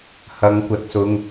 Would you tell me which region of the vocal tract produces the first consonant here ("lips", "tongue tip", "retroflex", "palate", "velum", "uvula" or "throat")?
throat